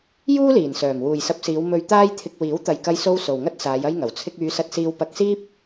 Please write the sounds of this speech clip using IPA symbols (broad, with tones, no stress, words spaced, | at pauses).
juː˥liː˨˩nsœː˨˩m wuː˨jsɐ˧p̚siː˨˧w mɵ˧ɥ t̪aː˥jt̪ʰɪ˧k̚ wiː˨˥wt̪ɐ˨jkɐ˧jso˧w so˨wŋɐ˥t̚saː˨˧j ɐ˥jŋɐ˨˩w t͡sʰɪ˧k̚yː˨˧sɐ˧t̚ siː˧wpɐ˧k̚siː˥p̚